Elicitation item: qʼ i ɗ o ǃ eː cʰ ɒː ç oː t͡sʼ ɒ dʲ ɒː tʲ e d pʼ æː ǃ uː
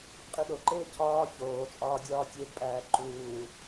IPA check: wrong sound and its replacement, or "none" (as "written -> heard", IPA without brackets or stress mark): ɒ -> ɒː